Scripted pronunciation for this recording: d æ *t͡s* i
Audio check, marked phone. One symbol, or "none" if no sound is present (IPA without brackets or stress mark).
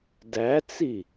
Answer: t͡s